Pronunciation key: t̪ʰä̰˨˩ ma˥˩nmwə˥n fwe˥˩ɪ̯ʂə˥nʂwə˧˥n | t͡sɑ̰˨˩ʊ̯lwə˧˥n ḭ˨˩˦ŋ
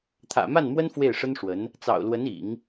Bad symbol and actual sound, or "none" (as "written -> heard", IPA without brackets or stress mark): none